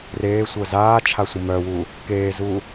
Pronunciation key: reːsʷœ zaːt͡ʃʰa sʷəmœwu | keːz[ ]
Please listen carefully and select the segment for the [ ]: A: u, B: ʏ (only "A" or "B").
A